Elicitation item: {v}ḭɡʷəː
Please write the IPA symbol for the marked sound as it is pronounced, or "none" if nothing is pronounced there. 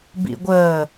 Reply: b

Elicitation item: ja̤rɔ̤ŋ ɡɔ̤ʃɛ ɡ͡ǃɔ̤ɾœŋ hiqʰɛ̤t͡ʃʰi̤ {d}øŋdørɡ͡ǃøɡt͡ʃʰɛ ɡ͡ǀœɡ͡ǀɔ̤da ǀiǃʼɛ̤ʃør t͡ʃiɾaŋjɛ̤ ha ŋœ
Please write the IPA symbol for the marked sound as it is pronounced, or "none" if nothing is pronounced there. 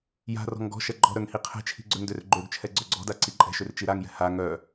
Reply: ɡ͡ǀ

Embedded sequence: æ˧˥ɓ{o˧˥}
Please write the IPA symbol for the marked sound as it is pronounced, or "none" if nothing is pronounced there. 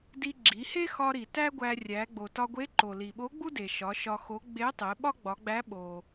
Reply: o˩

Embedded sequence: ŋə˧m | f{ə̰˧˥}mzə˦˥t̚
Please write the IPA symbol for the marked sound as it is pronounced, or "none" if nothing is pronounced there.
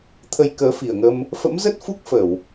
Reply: ə̰˧˥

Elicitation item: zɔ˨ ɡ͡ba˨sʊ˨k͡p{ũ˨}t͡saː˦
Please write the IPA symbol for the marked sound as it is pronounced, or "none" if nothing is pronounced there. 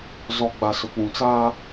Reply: ũ˨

